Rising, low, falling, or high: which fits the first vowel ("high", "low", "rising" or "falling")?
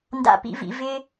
high